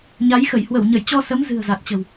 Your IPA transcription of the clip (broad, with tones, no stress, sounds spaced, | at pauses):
ɲ a˨˦ j x ə˧˩ j h w ə˧˩ w ɲ ə˧˩ j t͡ɕ ɔ˧ s ə˨˦ m z ɨ̤˨˩ ə̯ z a˨˩ t̚ t͡ɕ ə̤˨˩ w